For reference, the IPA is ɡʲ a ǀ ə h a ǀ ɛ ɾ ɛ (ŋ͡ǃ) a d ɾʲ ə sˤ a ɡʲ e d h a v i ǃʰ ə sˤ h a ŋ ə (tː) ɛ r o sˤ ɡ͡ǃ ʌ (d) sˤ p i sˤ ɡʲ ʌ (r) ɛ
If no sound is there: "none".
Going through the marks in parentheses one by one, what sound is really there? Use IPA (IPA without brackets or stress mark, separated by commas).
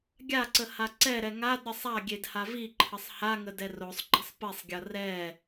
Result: ŋ, d, none, r